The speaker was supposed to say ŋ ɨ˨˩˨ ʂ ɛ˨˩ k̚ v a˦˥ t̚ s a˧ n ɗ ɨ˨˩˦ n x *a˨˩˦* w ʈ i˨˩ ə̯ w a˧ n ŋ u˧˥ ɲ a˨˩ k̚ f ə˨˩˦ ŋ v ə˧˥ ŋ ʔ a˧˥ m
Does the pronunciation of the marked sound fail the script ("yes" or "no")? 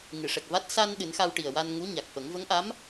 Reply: yes